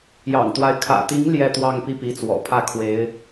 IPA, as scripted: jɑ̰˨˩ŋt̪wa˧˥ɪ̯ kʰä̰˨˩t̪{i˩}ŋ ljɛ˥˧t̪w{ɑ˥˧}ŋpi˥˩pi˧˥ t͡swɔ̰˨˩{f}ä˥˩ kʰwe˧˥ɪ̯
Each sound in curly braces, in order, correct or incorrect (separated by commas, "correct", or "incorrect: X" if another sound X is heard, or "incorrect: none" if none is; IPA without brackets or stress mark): incorrect: i˧˥, correct, incorrect: pʰ